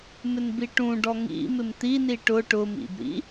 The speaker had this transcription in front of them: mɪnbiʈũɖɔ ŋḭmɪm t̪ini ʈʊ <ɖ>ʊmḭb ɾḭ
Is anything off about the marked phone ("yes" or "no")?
yes